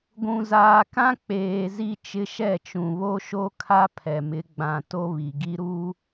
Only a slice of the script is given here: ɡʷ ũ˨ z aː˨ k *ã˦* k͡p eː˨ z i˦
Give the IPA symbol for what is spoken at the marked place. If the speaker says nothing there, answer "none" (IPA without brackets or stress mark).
ã˦